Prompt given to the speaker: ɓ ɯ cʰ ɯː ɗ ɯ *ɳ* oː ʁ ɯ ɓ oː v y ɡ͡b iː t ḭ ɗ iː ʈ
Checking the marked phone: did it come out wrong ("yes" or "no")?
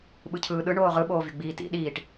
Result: no